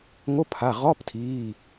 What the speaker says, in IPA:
ŋ o˧˥˧ pʰ a˩˧˩ ʁ ɔ˧˥˧ p tʰ iː˩˧˩

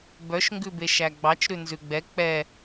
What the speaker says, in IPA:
b œ ʃ ŋ ɡ ʉ b e ʃ æ ɡ͡b ɑ t͡ʃ ɾ ʉ n z ʉ ɡ͡b ɛ k͡p ɛ

